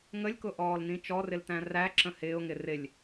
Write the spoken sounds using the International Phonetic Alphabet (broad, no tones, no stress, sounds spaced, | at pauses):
ŋ ə lʲ k ʊ ʔ ɔː l n ĩ t͡ʃ ɔ r ɪ l t æ̃ r æ ǁ ə̃ h ɪː ʊ̯ ŋ ɪ r ɪ lʲ